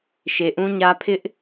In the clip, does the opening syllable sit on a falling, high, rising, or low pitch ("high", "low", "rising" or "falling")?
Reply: low